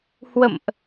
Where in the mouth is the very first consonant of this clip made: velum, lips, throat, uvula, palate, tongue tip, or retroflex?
throat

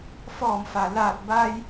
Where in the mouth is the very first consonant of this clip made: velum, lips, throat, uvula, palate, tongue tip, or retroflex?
lips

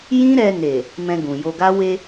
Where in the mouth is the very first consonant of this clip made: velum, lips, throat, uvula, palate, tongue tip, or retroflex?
palate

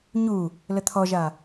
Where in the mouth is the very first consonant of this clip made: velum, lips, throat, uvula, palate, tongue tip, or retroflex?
palate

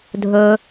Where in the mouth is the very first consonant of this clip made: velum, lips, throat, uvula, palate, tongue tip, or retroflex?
tongue tip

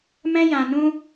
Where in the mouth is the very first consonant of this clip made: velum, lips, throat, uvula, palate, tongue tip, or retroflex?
lips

